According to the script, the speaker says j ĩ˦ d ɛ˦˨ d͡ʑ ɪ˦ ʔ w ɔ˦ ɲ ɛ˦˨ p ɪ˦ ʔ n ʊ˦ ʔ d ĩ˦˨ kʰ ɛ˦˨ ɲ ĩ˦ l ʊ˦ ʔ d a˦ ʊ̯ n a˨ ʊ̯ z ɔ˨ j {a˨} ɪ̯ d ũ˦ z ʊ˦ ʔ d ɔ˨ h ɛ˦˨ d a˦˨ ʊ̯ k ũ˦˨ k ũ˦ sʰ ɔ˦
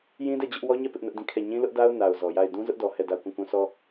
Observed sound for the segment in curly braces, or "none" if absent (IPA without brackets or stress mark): a˦˨